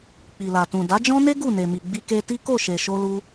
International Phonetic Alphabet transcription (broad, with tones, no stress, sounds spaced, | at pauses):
k͡p i˨ l a˨ t ũ˨ d a˨˦ d͡ʒ ɔ̃˦ n e˦ ɡ u˦˨ n e˨ m i˨ ɡ͡b i˧ k e˧ t i˦ k o˦˨ ʃ e˨ ʃ o˧ l u˧